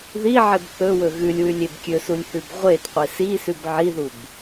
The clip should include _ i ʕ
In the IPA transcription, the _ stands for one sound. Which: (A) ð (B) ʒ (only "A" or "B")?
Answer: A